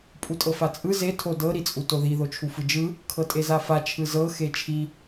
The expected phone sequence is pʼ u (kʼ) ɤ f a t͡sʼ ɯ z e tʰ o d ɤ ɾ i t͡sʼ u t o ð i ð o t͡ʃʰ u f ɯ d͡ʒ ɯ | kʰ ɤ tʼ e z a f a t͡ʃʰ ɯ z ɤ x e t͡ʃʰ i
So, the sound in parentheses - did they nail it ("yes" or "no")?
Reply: no